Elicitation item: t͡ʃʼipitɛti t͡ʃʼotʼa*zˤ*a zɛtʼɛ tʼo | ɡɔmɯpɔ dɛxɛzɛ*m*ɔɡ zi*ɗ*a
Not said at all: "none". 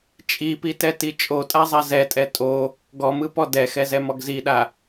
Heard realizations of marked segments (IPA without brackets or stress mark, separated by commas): zˤ, m, ɗ